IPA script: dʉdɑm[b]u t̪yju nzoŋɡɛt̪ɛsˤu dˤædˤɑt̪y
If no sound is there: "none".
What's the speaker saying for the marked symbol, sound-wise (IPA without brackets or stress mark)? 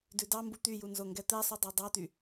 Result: b